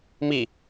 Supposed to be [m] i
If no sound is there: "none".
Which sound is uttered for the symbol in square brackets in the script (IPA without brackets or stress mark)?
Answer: m